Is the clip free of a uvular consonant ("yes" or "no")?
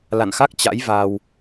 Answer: yes